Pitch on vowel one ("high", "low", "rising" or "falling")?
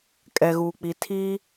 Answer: low